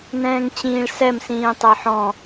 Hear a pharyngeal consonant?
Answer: yes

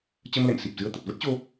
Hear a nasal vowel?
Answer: no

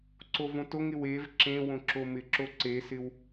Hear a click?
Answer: yes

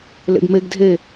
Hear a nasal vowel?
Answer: no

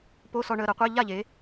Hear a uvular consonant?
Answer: yes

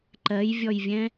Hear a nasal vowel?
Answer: yes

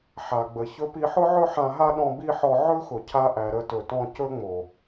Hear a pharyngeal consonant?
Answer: yes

